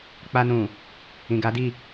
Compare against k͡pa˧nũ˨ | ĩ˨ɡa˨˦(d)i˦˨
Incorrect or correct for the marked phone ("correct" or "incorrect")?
correct